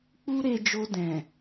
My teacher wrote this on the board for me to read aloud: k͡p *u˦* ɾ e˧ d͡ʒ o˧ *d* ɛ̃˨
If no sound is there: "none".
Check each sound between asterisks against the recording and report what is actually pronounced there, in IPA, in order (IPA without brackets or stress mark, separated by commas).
u˦, d